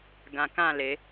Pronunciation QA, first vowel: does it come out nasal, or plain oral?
nasal